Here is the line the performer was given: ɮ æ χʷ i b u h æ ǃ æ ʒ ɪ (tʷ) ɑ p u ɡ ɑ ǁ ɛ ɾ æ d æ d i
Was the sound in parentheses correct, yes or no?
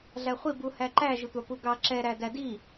yes